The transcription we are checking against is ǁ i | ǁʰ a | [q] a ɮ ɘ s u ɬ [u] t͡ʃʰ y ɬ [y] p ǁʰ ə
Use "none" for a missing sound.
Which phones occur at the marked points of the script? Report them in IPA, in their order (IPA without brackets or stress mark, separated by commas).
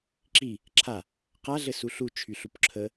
q, u, u